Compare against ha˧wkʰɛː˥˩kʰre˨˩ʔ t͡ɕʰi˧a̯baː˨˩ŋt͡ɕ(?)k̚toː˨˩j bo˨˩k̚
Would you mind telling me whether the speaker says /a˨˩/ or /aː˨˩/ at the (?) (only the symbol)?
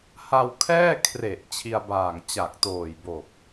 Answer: a˨˩